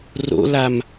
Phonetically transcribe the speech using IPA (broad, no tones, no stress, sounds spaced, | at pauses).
r o̰ l a m